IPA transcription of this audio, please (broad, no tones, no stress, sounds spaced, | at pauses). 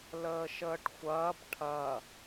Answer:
l əː ʃ əː ʈ xʷ ɐː b ʈʰ ɐ